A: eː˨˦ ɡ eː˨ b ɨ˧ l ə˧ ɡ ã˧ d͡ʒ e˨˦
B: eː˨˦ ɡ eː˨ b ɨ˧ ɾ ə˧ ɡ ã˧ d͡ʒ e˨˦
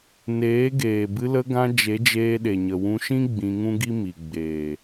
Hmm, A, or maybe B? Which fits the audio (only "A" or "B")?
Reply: A